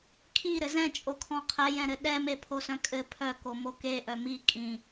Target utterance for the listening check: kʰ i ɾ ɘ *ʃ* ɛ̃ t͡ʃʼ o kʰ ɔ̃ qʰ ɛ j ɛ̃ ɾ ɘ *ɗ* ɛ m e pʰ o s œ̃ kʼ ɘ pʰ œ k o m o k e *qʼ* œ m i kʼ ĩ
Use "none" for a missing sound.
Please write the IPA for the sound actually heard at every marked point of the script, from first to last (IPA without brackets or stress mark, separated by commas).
z, ɗ, ʔ